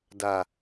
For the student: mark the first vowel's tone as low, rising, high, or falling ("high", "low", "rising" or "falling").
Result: low